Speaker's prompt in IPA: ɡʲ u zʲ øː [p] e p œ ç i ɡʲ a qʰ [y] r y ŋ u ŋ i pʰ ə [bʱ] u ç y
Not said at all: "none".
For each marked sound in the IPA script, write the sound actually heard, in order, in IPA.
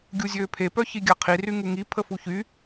pʰ, i, f

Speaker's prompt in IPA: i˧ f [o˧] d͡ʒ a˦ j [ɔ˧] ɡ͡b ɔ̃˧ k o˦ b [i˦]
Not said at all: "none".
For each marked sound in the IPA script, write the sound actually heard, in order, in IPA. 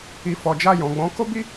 ɔ˧, ɔ̃˧, i˦

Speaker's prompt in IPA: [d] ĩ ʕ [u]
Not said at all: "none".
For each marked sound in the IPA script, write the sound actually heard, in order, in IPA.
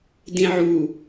d, u

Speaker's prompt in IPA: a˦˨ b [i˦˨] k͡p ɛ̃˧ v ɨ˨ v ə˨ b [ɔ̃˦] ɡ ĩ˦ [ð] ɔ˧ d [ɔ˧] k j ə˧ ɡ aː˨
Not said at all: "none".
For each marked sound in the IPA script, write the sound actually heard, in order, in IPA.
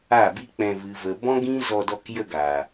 i˦, ɔ̃˦, z, ɔ˧

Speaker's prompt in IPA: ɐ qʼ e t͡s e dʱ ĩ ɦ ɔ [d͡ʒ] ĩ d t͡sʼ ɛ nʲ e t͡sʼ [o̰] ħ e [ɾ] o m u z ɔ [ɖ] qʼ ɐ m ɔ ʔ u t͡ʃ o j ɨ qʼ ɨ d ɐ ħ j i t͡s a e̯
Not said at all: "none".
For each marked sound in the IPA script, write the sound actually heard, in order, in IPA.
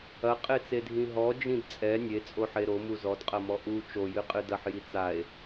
d͡ʒ, o, ɾ, d

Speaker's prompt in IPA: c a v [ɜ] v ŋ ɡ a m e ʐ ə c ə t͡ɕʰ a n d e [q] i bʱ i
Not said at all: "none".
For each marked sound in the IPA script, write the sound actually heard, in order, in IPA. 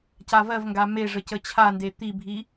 ɜ, t̪

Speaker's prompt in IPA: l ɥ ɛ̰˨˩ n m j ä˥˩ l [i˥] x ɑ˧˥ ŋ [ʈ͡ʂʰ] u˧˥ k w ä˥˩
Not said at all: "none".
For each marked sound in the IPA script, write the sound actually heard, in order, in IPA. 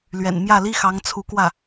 i˥, t͡sʰ

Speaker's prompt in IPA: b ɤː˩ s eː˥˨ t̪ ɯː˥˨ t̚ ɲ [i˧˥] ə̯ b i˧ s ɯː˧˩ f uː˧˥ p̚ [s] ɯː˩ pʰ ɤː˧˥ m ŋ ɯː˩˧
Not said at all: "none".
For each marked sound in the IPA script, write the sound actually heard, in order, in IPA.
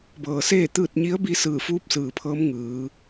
i˧˥, s

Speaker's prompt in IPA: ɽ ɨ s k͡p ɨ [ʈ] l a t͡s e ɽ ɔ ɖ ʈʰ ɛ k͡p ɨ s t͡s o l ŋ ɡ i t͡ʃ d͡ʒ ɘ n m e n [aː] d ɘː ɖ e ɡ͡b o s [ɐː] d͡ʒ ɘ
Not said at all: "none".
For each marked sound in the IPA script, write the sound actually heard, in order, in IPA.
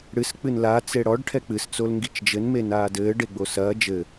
n, aː, ɐː

